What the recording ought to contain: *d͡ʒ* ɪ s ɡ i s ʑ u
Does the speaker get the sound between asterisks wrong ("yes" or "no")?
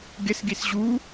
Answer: yes